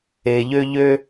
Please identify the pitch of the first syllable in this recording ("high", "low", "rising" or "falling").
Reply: low